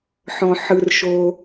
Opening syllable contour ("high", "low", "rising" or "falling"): low